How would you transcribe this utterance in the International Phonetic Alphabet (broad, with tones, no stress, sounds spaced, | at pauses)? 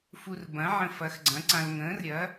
f u˧ r b ɐ̃˨˥ ʕ ə̃˧ f ɐ˨˥ x ɡ͡ǀ ɐ̃˨˥ ǀ ã˧ l ŋ ə̃ː˨˥ r ɾʲ ɐ˨˥